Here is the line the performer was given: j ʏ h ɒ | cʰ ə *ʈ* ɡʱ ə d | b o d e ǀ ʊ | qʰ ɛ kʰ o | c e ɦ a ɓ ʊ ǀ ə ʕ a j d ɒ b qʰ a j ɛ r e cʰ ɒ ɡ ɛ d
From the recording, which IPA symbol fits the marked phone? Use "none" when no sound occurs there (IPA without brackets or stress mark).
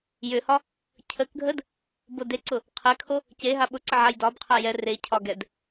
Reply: k